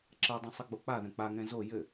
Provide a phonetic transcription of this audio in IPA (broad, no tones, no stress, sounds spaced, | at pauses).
ǁ ɐ dˤ ɐ̃ sˤ ɘ ɡ͡b o k͡p a ð ɛ̃ k͡p a ŋ ɛ̃ z o j ɘ